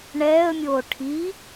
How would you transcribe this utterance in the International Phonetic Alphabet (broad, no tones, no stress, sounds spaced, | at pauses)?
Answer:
ɳ ɛː ə̯ mʲ oː ʈʰ i